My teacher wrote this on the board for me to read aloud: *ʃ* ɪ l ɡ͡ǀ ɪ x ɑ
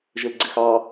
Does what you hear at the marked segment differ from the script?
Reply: yes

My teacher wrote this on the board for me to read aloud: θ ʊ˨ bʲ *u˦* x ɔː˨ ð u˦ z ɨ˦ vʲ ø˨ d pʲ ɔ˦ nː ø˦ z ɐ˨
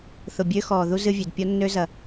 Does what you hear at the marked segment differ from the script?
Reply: yes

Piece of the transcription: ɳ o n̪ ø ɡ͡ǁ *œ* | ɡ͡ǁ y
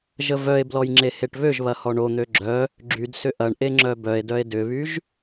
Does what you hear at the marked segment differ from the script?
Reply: no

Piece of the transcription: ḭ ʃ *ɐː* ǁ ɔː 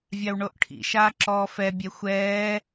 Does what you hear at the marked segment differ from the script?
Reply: yes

